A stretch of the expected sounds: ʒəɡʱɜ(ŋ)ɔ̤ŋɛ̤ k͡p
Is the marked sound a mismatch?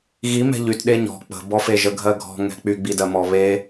yes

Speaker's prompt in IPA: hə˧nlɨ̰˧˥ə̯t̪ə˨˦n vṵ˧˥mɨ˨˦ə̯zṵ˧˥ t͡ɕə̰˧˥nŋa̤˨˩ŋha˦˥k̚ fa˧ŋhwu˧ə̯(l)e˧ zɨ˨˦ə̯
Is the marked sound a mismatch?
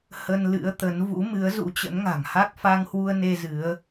yes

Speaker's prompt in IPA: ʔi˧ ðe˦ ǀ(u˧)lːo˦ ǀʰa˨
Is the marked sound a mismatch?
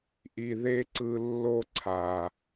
yes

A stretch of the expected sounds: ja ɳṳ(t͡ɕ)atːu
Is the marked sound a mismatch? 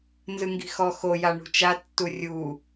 yes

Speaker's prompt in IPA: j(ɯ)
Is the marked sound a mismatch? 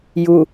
yes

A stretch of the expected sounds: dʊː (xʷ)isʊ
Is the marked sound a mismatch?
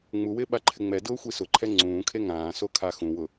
no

